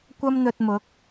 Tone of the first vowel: high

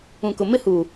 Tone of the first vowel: low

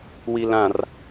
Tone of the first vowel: low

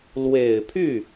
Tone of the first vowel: low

